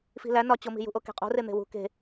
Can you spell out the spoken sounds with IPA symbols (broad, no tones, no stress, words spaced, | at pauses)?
fi̤læ nɒt͡ɕomi̤ jṳʔoke̤qʼo̤ ren̪e̤wṳ ke̤